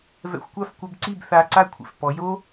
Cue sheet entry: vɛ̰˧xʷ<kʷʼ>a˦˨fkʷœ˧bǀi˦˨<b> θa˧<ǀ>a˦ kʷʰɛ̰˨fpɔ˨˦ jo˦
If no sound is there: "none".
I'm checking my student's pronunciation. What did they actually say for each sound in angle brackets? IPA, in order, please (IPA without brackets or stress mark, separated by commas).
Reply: kʷ, b, ǀ